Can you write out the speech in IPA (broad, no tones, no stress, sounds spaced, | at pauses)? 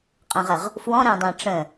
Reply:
qʼ ə̃ ʁ ə ʁ | f w ɔ̃ ɾ æ̃ dˤ æ̃ ʈ͡ʂ ə̃